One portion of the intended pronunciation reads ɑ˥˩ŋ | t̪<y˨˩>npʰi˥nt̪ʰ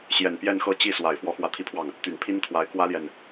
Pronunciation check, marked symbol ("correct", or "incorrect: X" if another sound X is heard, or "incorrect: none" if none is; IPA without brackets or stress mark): correct